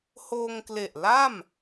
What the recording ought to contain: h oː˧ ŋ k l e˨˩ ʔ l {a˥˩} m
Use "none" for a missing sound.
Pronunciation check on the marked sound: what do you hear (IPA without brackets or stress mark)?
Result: a˥˩